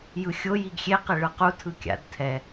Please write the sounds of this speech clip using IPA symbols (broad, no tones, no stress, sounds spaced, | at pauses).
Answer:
j ɯ xʲ o j i ɡ xʲ e q e ɭ ɯ q u tʰ ɯ kʲ a̰ d tʰ ɛ